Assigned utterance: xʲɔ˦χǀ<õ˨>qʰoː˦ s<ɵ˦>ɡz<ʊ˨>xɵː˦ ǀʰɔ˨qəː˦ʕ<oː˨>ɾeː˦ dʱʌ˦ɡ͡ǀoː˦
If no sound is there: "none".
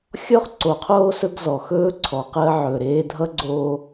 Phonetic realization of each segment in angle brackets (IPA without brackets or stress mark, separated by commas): o˨, ɵ˦, ɔ˨, ɵː˨